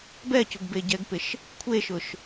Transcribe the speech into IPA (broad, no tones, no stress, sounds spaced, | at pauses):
b ɛ c ʊ ɡ b e ɟ ɛ ɡ p ɪ ʃ | kʷʰ e ʃ ʊ ʃ